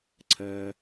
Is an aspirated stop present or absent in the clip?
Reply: present